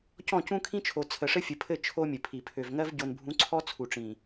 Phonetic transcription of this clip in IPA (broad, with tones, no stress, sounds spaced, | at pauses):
c ɔ̃˦˨ c ũ˦ kʰ ĩ˦ t͡ʃʰ o˨ t͡sʰ ə˨ ʂ ɘ˦ fʲ ɘ˨ pʰ ɘ˦˨ t͡ʃʰ o˦ mʲ ɘ˨ pʰ i˨ pʰ ø˨ v ŋ ɜ˦ v ɟ o˨ n bʱ ũ˨˦ ǀʰ ɔ˦ t͡sʰ u˨ ʈ͡ʂ ĩ˨